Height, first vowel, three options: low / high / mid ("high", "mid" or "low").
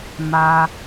low